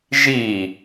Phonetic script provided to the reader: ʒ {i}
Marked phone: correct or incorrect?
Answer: correct